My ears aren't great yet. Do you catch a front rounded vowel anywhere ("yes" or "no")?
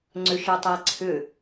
yes